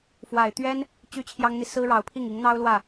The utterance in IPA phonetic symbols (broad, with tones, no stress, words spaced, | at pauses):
fwa˨˩ɪ̯t̪ɥɛ˥n | t͡ɕy˥t͡ɕʰjɑ˥ŋn̪i˨ sɹ̩˥ɻɑ˧˥ʊ̯pʰi˥˩ŋ i˧˥ŋn̪ɑ˥ʊ̯ lwä˥˩